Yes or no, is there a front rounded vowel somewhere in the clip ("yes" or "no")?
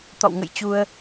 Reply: no